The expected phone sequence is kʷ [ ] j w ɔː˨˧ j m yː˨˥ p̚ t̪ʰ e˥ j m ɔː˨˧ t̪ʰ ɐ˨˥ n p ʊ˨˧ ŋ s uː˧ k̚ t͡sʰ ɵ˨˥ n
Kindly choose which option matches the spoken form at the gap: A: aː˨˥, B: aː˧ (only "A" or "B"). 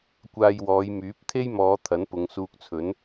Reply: B